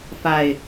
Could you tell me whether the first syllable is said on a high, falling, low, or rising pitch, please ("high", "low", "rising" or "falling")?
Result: low